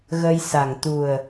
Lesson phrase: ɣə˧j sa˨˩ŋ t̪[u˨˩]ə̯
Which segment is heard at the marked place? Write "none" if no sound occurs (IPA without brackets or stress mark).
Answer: u˨˩